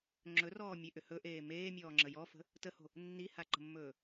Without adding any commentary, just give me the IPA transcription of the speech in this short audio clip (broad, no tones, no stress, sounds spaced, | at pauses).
ŋ͡ǁ ɵ r ɔː mʲ e ʔ ʏ h ɵ ʔ eː m eː mʲ ɔː ŋ͡ǁ ə j ɔ f ə̤ | t ə h o̤ | nː i h a ǃ ə̤ mː ɵː